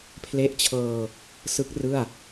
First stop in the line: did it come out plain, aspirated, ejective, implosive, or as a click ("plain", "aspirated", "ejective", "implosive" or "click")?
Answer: aspirated